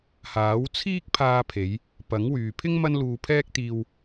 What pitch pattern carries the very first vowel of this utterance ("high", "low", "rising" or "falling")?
rising